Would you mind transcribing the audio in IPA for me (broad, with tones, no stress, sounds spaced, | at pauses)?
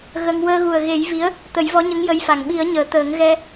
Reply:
ɣ ə˧ ŋ w əː˧ ɣ u˨˩ ə̯ ɣ e˨˩˦ j v i˧˥ ə̯ | t̪ ə˨˩˦ j v ɔ˧˥ ɲ ə˧˥ ŋ j ə˧˥ j f a˨˩ ŋ ɓ i˨˩˦ ə̯ ɲ əː˨˩˨ t̪ əː˨˩˦ ŋ ɣ ɛ˧